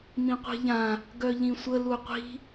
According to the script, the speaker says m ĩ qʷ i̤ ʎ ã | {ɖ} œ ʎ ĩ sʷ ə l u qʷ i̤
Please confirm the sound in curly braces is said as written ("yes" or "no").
no